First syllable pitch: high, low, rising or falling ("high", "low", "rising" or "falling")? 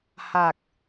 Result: low